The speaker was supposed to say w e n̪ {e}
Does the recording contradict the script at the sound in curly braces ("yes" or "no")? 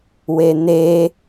no